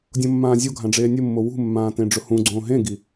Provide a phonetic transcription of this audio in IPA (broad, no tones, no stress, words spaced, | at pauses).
dʲõmːãːzʲoɡʱã ɖ͡ʐeːnʲʊmːo wṳmːãː tẽɖ͡ʐʊhũɡ͡ǀõː ɦẽɡi